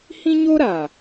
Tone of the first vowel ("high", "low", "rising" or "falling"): high